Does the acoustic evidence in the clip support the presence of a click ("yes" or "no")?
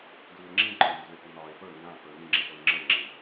yes